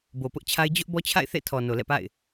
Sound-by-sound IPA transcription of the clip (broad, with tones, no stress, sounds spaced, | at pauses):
b o˨ p ʊ˦ ʔ t͡ɕʰ a˦ ɪ̯ d͡ʑ ʊ˦ ʔ b ɔ˦ t͡ɕʰ a̰˦˨ ɪ̯ θ ḛ˦˨ tʰ ɔ˨ n o˨ l ɛ̰˦˨ p a̰˦˨ ɪ̯